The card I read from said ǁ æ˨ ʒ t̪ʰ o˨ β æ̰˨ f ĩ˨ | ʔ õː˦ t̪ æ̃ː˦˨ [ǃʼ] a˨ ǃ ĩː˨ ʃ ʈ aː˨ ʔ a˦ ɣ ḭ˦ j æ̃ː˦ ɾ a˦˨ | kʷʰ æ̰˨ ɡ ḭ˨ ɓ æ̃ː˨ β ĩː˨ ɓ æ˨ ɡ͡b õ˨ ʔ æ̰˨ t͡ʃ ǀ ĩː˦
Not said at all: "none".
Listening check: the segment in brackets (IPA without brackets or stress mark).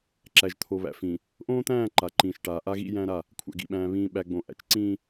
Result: ǃ